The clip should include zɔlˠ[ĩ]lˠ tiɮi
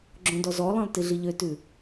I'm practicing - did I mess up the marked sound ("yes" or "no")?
no